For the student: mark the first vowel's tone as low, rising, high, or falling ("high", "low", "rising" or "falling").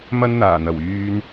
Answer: high